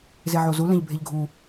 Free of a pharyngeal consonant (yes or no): no